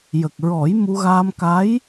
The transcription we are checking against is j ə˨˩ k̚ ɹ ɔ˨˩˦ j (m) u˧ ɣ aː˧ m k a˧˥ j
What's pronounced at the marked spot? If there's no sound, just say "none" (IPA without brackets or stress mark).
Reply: m